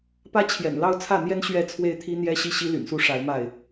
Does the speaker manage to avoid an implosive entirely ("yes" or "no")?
yes